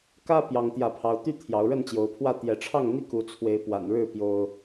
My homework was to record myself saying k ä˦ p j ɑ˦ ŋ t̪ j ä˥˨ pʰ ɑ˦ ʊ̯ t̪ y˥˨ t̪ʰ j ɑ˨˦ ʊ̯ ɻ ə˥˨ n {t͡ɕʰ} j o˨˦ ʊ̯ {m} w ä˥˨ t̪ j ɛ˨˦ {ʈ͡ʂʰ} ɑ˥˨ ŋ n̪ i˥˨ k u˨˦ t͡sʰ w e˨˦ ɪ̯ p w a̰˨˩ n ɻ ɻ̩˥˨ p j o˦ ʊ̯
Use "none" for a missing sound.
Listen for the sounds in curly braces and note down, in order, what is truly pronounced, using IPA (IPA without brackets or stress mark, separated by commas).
t͡ɕ, pʰ, ʈ͡ʂʰ